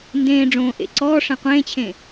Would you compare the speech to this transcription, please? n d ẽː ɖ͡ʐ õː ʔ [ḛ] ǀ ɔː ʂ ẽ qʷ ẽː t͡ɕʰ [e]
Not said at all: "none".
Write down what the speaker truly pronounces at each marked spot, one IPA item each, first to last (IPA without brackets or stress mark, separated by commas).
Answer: ḛ, ẽ